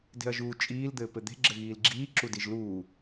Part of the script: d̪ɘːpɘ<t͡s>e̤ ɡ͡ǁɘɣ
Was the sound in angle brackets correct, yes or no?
no